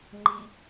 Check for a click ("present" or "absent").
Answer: present